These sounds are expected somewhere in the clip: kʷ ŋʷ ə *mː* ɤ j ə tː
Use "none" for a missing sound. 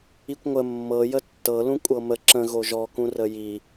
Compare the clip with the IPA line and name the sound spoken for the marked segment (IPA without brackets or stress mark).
mː